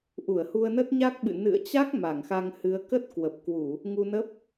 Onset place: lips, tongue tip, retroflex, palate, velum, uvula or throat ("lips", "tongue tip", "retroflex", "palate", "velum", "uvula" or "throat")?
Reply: throat